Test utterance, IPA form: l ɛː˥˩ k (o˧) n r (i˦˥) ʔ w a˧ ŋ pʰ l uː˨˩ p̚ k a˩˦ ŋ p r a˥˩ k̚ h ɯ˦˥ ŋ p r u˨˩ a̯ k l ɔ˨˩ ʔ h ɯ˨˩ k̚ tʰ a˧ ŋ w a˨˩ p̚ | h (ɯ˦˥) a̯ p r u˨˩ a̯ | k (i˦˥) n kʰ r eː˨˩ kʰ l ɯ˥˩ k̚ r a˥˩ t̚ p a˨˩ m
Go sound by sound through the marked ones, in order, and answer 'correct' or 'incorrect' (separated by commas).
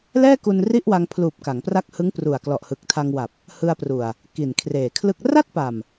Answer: incorrect, incorrect, incorrect, incorrect